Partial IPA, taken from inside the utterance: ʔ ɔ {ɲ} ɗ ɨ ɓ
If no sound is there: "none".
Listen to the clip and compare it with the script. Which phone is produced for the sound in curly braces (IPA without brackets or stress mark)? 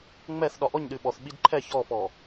ɲ